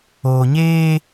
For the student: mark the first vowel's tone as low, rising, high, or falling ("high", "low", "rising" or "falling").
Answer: low